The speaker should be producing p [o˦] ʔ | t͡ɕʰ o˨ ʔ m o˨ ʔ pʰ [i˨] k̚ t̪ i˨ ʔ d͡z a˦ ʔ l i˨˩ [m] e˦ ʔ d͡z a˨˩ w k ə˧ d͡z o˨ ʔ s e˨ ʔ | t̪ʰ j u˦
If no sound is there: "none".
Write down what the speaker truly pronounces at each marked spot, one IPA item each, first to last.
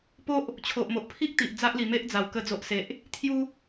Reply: o˦, i˦, m

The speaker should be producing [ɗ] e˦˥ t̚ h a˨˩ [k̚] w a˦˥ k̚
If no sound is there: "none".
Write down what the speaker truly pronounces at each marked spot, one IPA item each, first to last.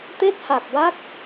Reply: t̪, k̚

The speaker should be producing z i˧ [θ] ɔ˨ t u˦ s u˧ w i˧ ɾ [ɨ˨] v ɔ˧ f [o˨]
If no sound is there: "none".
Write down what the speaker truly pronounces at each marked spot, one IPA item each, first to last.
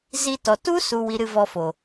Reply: t, ɨ˧, o˨

